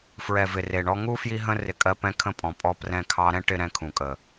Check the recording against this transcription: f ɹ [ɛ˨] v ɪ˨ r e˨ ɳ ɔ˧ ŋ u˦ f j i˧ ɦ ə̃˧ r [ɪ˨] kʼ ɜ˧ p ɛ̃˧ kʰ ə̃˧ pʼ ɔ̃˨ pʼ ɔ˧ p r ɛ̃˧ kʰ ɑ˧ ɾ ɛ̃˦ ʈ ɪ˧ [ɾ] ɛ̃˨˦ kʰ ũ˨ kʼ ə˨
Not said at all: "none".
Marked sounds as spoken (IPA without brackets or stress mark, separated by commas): ɛ˨, ɪ˨, ɾ